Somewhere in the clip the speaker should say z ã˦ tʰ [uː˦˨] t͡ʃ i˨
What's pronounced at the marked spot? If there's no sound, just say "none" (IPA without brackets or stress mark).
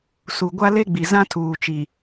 uː˨